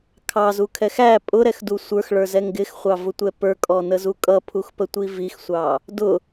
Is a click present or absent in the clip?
absent